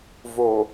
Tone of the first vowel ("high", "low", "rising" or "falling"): low